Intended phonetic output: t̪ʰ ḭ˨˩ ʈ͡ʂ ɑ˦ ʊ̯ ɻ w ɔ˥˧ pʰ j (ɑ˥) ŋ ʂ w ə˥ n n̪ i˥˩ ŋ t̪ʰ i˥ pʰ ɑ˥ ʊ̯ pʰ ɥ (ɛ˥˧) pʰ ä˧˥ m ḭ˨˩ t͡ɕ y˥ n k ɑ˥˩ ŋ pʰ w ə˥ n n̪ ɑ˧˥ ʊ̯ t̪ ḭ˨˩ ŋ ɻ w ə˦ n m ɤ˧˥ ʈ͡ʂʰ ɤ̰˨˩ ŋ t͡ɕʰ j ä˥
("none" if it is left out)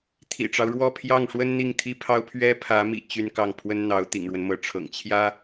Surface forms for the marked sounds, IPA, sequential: ɑ˥˩, ɛ˥

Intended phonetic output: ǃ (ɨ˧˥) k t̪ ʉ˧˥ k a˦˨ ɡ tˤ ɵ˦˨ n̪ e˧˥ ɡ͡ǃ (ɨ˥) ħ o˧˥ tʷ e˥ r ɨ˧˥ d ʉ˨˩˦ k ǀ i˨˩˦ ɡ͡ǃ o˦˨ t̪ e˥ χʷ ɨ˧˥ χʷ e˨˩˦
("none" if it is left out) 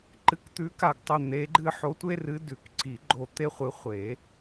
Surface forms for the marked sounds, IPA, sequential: ɨ˧˥, ɨ˥

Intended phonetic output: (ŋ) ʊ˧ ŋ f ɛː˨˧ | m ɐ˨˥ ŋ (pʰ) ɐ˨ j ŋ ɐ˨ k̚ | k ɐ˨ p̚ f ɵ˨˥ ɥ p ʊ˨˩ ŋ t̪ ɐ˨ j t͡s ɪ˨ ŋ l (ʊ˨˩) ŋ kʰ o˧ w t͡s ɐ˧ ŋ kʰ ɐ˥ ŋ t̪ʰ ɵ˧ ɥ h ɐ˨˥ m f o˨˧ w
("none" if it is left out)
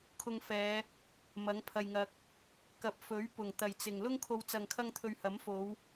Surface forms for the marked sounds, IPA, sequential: kʰ, pʰ, ʊ˥

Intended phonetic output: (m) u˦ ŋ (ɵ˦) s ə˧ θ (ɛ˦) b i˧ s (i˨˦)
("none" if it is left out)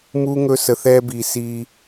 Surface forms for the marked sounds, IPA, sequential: m, ɵ˦, ɛ˦, i˧

